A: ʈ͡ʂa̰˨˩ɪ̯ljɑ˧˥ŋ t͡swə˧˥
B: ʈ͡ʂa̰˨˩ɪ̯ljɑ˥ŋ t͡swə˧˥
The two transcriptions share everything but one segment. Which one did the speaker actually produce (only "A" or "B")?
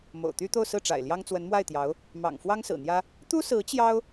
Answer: B